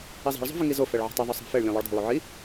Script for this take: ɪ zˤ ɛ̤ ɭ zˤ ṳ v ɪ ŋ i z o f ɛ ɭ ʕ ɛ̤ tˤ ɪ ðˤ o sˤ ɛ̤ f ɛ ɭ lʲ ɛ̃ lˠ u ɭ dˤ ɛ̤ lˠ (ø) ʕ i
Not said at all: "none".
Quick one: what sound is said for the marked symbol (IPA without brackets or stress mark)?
u